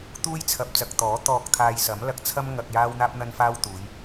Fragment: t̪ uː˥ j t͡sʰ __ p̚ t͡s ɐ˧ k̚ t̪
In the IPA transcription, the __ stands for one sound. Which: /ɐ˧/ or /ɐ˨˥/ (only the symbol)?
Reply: ɐ˧